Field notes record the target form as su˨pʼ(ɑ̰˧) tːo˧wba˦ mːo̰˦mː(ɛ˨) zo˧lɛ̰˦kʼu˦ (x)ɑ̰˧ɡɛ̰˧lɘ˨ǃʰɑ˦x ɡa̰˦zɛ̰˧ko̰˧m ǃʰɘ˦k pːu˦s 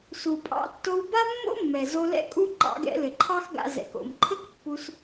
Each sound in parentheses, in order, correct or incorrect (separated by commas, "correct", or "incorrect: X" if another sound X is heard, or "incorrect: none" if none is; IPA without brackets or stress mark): correct, correct, incorrect: ǃ